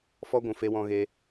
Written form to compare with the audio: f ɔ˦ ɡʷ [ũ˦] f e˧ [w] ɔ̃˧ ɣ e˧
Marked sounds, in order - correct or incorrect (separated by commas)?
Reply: incorrect, correct